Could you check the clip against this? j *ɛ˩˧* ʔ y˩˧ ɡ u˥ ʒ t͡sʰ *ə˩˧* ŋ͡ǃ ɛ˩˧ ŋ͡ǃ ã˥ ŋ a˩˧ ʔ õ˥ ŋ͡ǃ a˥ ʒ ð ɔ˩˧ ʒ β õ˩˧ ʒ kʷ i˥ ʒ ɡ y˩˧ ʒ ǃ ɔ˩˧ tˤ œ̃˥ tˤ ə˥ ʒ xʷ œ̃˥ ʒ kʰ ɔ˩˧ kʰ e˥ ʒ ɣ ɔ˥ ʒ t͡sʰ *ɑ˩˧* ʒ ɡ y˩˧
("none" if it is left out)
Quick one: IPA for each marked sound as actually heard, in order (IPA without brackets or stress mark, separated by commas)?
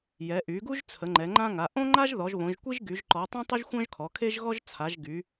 ɛ˩˧, ə˩˧, a˩˧